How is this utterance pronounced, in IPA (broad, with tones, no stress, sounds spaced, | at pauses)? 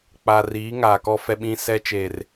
k͡p a˨ r iː˨˦ ŋ aː˨ k ɔ˦ f ɛ˦ ɓ ĩ˦ s ɛ˦ t͡ʃ eː˨ r